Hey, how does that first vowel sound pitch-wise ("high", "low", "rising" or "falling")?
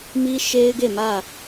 high